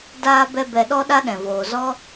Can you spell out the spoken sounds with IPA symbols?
d aː˧ b ɛ˧ b ɛ˧ ɗ ɔ˦ ɗ a˦ ɗ ɛ̃˨ v oː˨ z ɔ˦

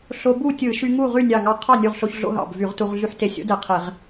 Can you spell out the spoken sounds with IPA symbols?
ɬ o˧ b u˥˨ tʲ ɯ˧˩˧ ʃ y˧ ŋ u˥˨ ʁ y˥˨ nʲ ɑ˧˩ ŋ ɑ˧ qʰ ɑ˥˨ nʲ u˧˩ ʁ ɬ o˧ ç ɮ o̰˧ ɦ ɑ̰˧˩ b v y˧˩˧ ʁ t u˧ ʁ ɮ y˧ ħ t e˧ sʲ o̰˦˥ d e˧˩ qʰ e˧˩˧ ʁ

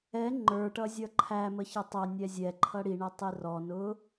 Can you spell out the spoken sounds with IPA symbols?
ɛ ŋ͡ǃ ə˞ ʈ ʌ zʲ ʌ ǃʰ æ m ə ç ʌ tˤ ʌ nʲ ɛ zʲ ɛ ǃʰ ʌ ɽ i ɳ ɛ tˤ i r ɔ n ʊ

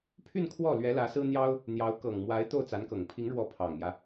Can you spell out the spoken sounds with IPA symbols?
pʰ y˥˧ n kʰ w ɔ˥˩ l ɥ ɛ˧˥ l ä˧˥ s ɹ̩˥ n̪ j ɑ˥ ʊ̯ | n̪ j ɑ˧˥ ʊ̯ k ɤ˨˩ ŋ m w a˧˥ ɪ̯ t̪ o˥˩ ʊ̯ t͡s a˧˥ n k ɤ˨˩ ŋ pʰ i˧˥ ŋ ɻ w ɔ˧˥ pʰ ɑ˨˩ ŋ m j ä˦

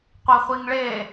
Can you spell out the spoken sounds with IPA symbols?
qʷ i χʷ i ŋ ɭ e

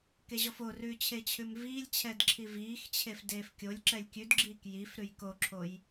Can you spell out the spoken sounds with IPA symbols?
k e ʑ ɔ f o r ʉː t͡ɕʰ e t͡ɕʰ ʉ m v iː lʲ t͡ɕʰ ɛ d ǁʰ i v iː x t͡ɕʰ e f d eː f kʲ o lʲ ǁ ɛ lʲ kʲ ʉ d ɡ͡ǁ iː k j i f ɾ ʉ j k o ǁʰ o j

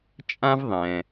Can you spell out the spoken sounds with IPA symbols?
t͡ʃʼ ã˥ v ðˤ ɛ̃˩

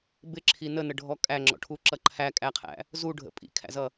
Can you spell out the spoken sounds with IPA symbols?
b ɪ ǁʰ i n ə n ə ɖʱ ɔ kʼ æ ŋ͡ǁ ɔ̰ ʈʰ u ǁ ʌ ǃʰ æ kʼ æ qʰ æ̰ | z u ɖʱ ə̰ pʼ ḭ kʰ æ̰ z ʌ

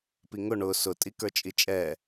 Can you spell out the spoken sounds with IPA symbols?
p i ŋ ʊ ɳ ʊ s ʊ tʼ i k ə˞ t͡ʃʼ i t͡ʃʼ ɛ

